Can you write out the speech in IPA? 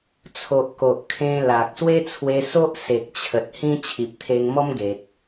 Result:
t͡sʰ o˨ ʔ k o˨ ʔ kʰ ẽ˧ l a˨ k̚ s w e˦ t͡sʰ w e˧ s o˦ ʔ s e˨ k̚ t͡ɕʰ ə˨ t̚ h ĩ˦ t͡ɕʰ i˨ p̚ t̪ʰ e˧ ŋ m ɔ˦ m ɡ e˨ t̚

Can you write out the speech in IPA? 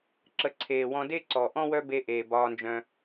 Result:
ǁ ə˨˦ ǀʰ eː˨ w ɔ̃˧ d e˦ ǀ ɔ˨ ʔ ɔ̃˦ w œ˦ b e˧ ʔ eː˨ b ɒː˧ n d͡ʒ œ̃˧

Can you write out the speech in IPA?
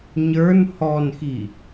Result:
ɲ ə˞ n h ɔ n x i

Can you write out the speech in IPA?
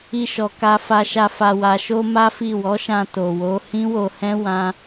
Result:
i˧ ʃ ɔ˨ k a˧ f a˧ ʃ a˧ f a˨ w a˨ ʃ o˧ m a˦ f i˦˨ w ɔ˨˦ ʃ ã˧ t o˨ w o˨˦ h ĩ˦ w o˧ h ɛ̃˦ w ã˦

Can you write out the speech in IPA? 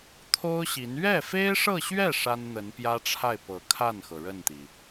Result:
t̪ʰ o˥ ʊ̯ ɕ i˧˥ n ɥ ɛ˥˩ f e˥ ɪ̯ ʂ ɤ˥˧ ɕ ɥ ɛ˥˩ ʂ a˥ n n̪ ə˧˥ n p j ä˥ ʈ͡ʂʰ a˥˩ ɪ̯ p ɤ˧˥ kʰ a˥˩ n x ɤ˩ ɻ ə˥˩ n t̪ i˩

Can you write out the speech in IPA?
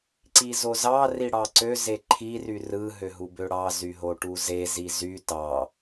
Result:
ǀ i z o z ɑ r i ɽ ɑ ǀ ø z e ǃʰ i r y r ɯ ɦ ø ɦ u b ø ɽ ɑ z y ɦ o ʈ u z e z i z y t ɑ

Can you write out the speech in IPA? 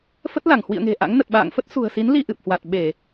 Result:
f ə˦˥ t̚ l a˧˩ ŋ h w ḭ˧˨ ə̯ ŋ e̤˨˩ ʔ a̰˧˥ ŋ n ə˨˩ t̚ ɓ a̰ː˧˨ ŋ f ə˦˥ t̚ s ṳ˨˩ ə̯ s i˨˦ n l i˧ ʔ ɨ˨˩ p̚ h w a˨˩ t̚ ɓ e˧˩˨

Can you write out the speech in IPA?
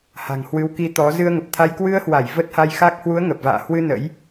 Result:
h a̤˨˩ ŋ h w ɨ˨˦ w k i˧ t̪ ɔ˨˦ z ɨ˧ ə̯ ŋ ə˨˩ p̚ t̪ʰ a˧ j k w ɨ˧ ə̯ h w a˧˩ j v ə˦˥ t̚ h a˧ j x a˦˥ k̚ h w u˨˦ ə̯ ŋ ə˨˩ p̚ v a̰ː˧˨ h w ɨ˧ n ə̰˧˥ j

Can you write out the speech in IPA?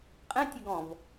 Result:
qʼ ɛ̃ tʲ ə ɡ ɔ̃ v

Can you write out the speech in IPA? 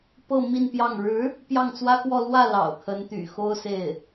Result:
p ɤ˥˧ m i˥˧ n p j ɑ˥˩ ŋ ɻ ɻ̩˧˥ | p j ɑ˥˩ ŋ t͡s w ä˥ k w ɔ˥˧ l w ä˥˩ l ɑ̰˨˩ ʊ̯ kʰ ə˧˥ n t̪ y̰˨˩ x o˥ ʊ̯ s e˥˩ ɪ̯

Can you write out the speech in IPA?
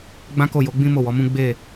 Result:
ɡ͡b ã˦ k o˦˨ j o˨˦ ɡ͡b ĩ˦ m o˦˨ w ɔ˨˦ m ũ˦ ɡ͡b e˦˨

